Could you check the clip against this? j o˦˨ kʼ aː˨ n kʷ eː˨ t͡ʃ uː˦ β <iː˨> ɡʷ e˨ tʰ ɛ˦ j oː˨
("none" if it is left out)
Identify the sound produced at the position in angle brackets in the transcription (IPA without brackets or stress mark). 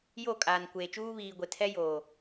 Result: iː˨